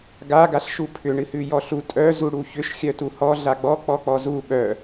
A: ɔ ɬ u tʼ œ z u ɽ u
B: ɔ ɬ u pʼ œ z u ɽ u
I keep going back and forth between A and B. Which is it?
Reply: A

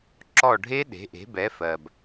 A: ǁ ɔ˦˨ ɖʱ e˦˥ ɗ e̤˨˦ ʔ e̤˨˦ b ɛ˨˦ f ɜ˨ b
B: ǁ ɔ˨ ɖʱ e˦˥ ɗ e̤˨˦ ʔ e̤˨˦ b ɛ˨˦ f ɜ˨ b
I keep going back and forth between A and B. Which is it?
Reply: A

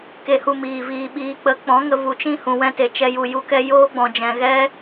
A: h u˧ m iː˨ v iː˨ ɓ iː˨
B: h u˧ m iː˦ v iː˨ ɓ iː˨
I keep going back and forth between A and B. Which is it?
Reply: A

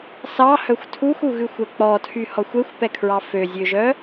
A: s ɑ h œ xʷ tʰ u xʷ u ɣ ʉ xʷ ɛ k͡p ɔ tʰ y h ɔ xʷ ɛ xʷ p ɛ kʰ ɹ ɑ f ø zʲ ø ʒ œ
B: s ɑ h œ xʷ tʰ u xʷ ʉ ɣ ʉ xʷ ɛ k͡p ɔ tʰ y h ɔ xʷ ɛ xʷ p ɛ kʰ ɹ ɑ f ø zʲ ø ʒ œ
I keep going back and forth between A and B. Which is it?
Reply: A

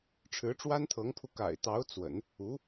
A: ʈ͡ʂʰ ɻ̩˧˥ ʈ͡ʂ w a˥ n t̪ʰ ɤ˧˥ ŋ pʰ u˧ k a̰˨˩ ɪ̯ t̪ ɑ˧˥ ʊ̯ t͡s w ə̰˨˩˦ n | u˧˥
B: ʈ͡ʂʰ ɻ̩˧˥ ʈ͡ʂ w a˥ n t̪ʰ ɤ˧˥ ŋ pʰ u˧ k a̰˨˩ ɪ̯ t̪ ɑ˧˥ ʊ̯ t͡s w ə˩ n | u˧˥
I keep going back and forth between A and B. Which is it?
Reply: A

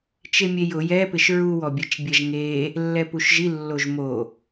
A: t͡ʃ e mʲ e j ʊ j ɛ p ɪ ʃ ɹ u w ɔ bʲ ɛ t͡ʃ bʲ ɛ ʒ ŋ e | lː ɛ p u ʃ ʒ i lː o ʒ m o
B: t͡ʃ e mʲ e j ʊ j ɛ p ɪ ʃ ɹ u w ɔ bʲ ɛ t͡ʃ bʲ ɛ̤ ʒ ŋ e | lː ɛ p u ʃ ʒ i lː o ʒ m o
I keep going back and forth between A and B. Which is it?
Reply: A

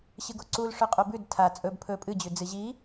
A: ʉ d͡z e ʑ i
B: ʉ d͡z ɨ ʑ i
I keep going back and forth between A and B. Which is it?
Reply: B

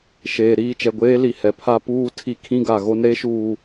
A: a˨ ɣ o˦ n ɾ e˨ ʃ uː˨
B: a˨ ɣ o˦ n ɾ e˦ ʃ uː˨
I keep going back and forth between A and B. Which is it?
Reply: B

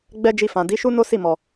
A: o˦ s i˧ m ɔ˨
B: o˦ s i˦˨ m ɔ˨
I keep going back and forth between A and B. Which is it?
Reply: B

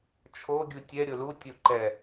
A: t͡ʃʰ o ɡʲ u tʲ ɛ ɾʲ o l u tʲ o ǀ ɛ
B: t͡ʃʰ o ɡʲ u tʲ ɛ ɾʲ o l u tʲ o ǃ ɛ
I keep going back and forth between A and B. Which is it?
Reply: B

